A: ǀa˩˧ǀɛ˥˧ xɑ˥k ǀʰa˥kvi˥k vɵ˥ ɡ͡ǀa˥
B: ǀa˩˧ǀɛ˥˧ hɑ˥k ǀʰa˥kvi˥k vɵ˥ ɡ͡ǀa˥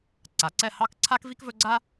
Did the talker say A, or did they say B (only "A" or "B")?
B